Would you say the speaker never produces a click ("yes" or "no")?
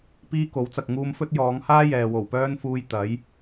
yes